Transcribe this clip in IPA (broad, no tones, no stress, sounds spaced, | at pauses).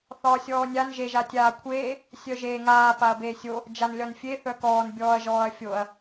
θ ɒː sʲ ɔː nʲ a n ʒ e ʒ a tʲ aː kʷʰ eː | sʲ œ ʒ eː ŋ aː p a ɐ̯ b eː sʲ o | d͡ʒ a n lʲ ɒ n fʲ e θ œ k ɔː n bʲ ɔː ɐ̯ ʒ ɔː ɐ̯ fʲ o ɐ̯